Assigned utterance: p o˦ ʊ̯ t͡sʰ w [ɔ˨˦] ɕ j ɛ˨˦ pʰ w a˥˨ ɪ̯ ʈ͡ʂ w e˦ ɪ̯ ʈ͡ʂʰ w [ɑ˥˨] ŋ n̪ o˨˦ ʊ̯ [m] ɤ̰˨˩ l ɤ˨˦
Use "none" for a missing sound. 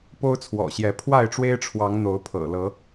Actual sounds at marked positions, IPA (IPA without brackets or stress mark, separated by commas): ɔ̰˨˩, ɑ˨˦, pʰ